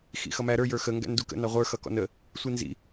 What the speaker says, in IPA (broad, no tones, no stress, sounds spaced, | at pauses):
x ḭ x ʌ m æ ɾ ə˞ j ə˞ x ə ŋ ɡ æ̰ n d u k ə̰ n ɑ ʁʷ ə˞ x ʌ k ɔ̰ n ə | sʷ i n z ḭ